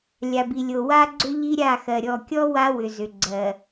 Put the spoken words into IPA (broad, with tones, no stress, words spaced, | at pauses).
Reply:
lʲa˨bi˨lʲo˨ wa˦ɡ͡ǀʏ˦ ʎi˦ɾʲa˦˨xɜ˨ ɾʲɔ˨kʲɔ˦ wa˦ wʏ˨ zʏ˨ ɡ͡ǀɜ˨